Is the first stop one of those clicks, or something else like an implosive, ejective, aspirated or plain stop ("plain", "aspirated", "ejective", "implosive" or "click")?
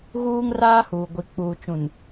plain